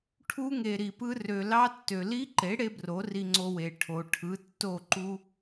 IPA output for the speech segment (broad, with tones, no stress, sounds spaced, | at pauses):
ʈʰ u˦ ŋ e˨ ɾ i˨ p ɯ˦ r ø˨ l ɑ˦ tː ø˨ l i˦ ǃ e˨˦ ɽ e˦ b r o˨˦ r i˧ ŋ͡ǀ o˧ w e˨ ʈʰ o˨ ʈʰ ɯ˨˦ tː o˦˨ ǃ u˦